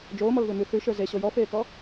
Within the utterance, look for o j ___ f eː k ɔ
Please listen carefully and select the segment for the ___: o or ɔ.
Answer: ɔ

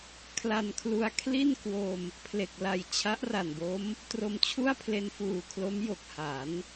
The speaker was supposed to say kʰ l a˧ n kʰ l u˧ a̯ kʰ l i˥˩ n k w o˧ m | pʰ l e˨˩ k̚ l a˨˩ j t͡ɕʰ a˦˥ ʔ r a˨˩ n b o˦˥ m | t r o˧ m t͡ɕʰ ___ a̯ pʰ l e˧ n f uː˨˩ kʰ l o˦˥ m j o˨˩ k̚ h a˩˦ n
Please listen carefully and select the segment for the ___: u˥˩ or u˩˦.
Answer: u˥˩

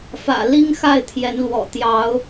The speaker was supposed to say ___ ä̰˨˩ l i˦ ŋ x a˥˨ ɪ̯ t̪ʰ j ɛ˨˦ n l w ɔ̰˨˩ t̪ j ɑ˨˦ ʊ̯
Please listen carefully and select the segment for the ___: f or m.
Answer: f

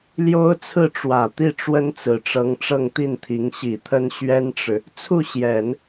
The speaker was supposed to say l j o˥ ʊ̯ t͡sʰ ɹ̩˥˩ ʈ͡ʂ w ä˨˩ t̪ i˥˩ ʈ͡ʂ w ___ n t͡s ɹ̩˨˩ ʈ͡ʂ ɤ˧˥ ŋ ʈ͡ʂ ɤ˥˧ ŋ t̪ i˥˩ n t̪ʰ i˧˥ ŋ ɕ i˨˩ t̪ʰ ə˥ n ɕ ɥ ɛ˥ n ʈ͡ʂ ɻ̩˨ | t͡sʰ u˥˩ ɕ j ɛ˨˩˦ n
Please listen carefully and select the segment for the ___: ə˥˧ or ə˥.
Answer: ə˥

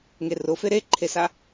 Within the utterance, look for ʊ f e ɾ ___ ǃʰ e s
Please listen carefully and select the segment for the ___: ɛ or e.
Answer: e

